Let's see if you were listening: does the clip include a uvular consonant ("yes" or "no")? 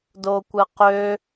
yes